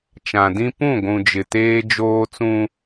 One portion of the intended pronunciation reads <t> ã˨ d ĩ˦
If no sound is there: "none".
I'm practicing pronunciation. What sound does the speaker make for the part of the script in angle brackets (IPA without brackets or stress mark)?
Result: t͡ʃ